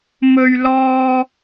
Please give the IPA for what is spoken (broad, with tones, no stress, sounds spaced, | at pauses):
m ɵ˧ ɥ l ɔː˧